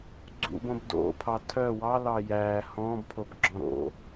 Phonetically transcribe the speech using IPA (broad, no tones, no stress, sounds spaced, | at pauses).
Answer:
ɡ͡ǀ ṵ b õ b d o̰ pʰ ɑ tʰ œ w ɑ l ɑ j æː h ɔ̃ː b pʰ o b ɡ͡ǁ ɔ̃ ɾ o̰